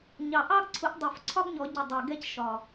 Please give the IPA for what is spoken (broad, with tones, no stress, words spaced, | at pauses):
ɲɑ˨˩ʔɑ˥ɡǀʰʊ˨˦ʔ dˤu˨˩˦fǀʰɒ˥ɡɲɔ˨˩˦ ɟɪ˨˩ dˤɜ˨˩ɡɛ˥c ʃɒ˨˩